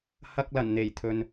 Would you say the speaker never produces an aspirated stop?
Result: no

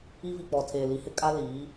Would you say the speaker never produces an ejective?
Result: no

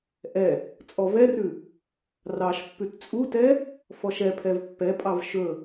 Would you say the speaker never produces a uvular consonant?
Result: yes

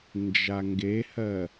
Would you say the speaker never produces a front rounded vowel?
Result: yes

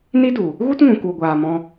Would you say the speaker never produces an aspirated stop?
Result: yes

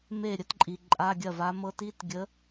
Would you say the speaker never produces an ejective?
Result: no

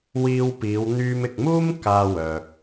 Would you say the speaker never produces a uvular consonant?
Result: yes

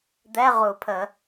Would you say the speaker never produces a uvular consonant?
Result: no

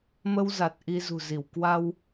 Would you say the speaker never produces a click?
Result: yes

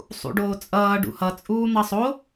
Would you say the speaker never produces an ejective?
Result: no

